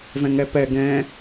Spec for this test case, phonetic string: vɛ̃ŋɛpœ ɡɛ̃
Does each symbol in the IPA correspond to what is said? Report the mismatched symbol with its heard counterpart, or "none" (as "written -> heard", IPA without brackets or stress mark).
œ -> ɛ